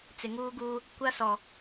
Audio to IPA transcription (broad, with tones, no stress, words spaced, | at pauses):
t͡sɪ˨ŋuː˦ɡuː˦ | kʷa˦sɔ˨